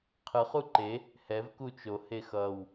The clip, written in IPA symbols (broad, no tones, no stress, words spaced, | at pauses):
qʰɯχ uǃe | hɛv kut͡ʃo hexʌw